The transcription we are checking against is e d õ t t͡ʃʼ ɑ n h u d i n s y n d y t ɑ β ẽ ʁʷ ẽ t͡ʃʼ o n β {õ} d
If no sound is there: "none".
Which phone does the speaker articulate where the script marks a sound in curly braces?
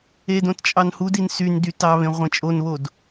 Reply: o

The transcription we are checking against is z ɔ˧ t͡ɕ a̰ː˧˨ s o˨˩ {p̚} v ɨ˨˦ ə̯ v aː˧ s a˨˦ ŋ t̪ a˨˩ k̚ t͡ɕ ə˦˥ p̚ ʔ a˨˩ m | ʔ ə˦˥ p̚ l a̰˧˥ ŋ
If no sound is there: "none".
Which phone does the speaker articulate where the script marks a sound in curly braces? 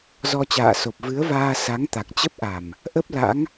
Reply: p̚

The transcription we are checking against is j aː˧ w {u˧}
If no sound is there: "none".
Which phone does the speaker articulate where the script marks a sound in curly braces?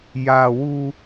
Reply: u˧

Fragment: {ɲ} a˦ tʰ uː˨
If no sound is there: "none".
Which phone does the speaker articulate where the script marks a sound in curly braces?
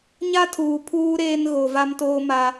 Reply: ɲ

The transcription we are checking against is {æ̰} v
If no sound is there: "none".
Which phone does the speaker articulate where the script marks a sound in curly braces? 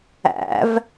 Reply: æ̰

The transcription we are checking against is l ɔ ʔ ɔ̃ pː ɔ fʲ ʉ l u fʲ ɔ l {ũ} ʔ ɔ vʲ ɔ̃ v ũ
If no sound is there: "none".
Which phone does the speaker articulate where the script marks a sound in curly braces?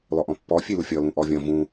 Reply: ũ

